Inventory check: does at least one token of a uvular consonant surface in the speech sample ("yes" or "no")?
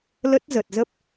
no